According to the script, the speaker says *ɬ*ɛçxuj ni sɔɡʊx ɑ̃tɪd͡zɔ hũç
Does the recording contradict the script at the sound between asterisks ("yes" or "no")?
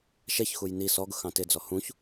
yes